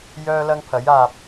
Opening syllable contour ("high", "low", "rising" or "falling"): high